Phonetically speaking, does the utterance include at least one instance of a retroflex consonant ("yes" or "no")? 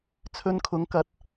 no